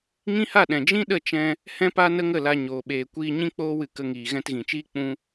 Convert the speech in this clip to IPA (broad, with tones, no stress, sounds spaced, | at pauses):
ŋ ĩ˦ h a˦˨ ɗ ɛ̃˨ d͡ʒ ĩ˦ ɗ ə˦˨ t͡ʃ ɛ̃˧ | h ɛ̃˦ p a˦ n ə˦ ŋ ə˦˨ l a˧ ɲ oː˨ ɓ eː˨ kʷ iː˧ ɲ ĩ˦ k͡p oː˦ w ɨ˧ k ə˧ ŋ iː˨ ɣ ɛ̃˧ t ɣ ĩ˨ t͡ʃ iː˦ k͡p ũ˧